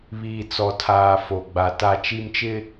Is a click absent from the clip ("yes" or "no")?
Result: yes